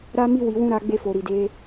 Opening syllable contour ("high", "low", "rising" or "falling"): high